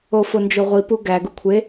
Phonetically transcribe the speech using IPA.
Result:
o f o n d͡ʒ o ʁʷ i p u ɡ æ ɡ u kʷʰ e

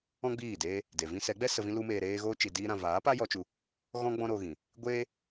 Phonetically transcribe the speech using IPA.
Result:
ɔ̃˦ ɡ͡b iː˦˨ d eː˦ | d e˨ v ĩ˦ s ɛ˨˦ ɡ͡b ɛ˦ s ə˧ v ĩ˦ l u˧ m eː˧ ɾ eː˦ ɣ oː˦ t͡ʃ i˨ d iː˧ ɾ ã˨ v aː˨˦ p a˦ j ɔ˧ t͡ʃ u˧ | ɣ ɔ̃˦ ɡ͡b ɔ̃˦ ɾ o˧ ɣ ĩ˨ | ɡʷ eː˦

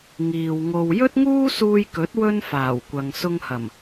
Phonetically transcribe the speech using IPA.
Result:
ŋ iː˨ w ŋ o˧ w j ɵ˥ t̚ ŋ uː˥ s uː˧ j k ɵ˨˥ t̚ w ɵ˥ n f aː˨˩ w kʷ ɐ˨ ŋ s ʊ˧ ŋ h ɐ˨˩ m

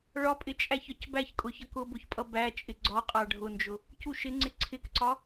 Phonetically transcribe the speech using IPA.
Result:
ɭ ɒ pʼ ɪ t͡ʃʼ æ ç ɒ c b æ ç kʼ ʊ ç ʌ k ʊ b ʊ ç pʼ ʌ b æ t͡ʃʼ ɪ ɡ͡ǀ ɒ qʼ ɑ ɖʱ ʊ n d͡ʒ ʊ | c u ʃ ɪ ŋ͡ǀ ɪ ǀʰ ɪ k ǀ ɒ

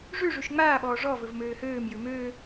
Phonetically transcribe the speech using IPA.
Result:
ʐ ʉ ʐ ʉ ʃ ŋ͡m aː ɓ ɔː ʐ ɔ v ɵ v m øː h øː m j ʉ m øː

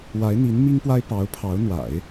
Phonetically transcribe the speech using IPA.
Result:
w a˧˥ ɪ̯ n̪ i˧˥ n m i˥ ŋ p w a˥ ɪ̯ p ɑ˧˥ ʊ̯ pʰ ɑ˧˥ ʊ̯ n̪ w a̰˨˩˦ ɪ̯

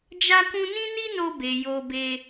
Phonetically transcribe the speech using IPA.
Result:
d͡ʒ a˦ k ũ˦ n ĩ˦ n i˦ n o˧ b e˨ j o˧ b e˧

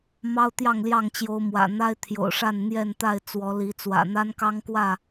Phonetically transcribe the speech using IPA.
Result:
m ɑ˦ ʊ̯ t̪ j ɑ˥˨ ŋ l j ɑ˥˨ ŋ t͡ɕ j o˨˦ ʊ̯ m w ä̰˨˩ n̪ a˦ ɪ̯ t̪ʰ j o̰˨˩ ʊ̯ ʂ a˥˨ n n̪ j ɛ˥˨ n t̪ a˥˨ ɪ̯ t͡s w ɔ˨˦ l i˨˦ t͡s w ä̰˨˩ n̪ a˦ n k ɑ˦ ŋ k w ä˥˨

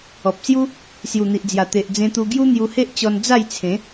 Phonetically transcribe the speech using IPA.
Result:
ɔ˨ p̚ s j u˦ | s j u˨˩ n̪ i˨ ʔ d͡z j a˨˩ t̪ e˨ ʔ d͡z ẽ˧ t̪ u˧ ɡ j u˦ n̪ j u˧ h e˦ ʔ t͡ɕ ɔ˧ n d͡z a˥˧ j t͡sʰ ẽ˨˦

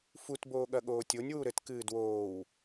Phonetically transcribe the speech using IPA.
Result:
f u t b oː ɠ ɐ ɠ oː tʲ o nʲ w u ɾ ɘ t k ɨː d w oː w

